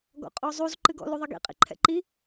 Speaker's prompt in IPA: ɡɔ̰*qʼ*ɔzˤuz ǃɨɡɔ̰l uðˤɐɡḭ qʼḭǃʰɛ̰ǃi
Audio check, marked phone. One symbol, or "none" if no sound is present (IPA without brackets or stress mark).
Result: qʼ